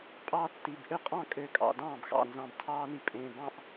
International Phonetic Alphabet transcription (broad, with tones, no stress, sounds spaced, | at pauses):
pʼ ɑː˦ tː i˩˧˩ b ʔ ø˥˩ qʼ ɑ̃˥˩ kʼ ø˧˩ kʼ ɑ̰˩˧˩ d ɑ̃ː˥˩ b x ɑ̰˧˩ n z ɑ̃˧˩ b tʰ ɑː˦ n i˧˩ pʼ ẽ˩˧˩ b ɑ̃˥˩ ʔ